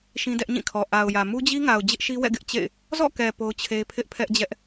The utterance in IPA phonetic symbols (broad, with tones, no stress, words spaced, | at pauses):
ʃĩ˦dɛ˦ʔɲĩ˦˨kʰɔ˨ ʔa˨ʊ̯jä˨ mu˦d͡ʑi˦ŋa˨ʊ̯ d͡ʑɪ˦ʔʃi˦wɛ̰˦˨ ɡɪ˦ʔt͡ɕḛ˦˨ɪ̯ | zɔ̰˦˨kɛ˨ po˦ʊ̯t͡ɕʰe˦ pʰɪ˦ʔpʰɛ˦ʔd͡ʑɛ˦ʔ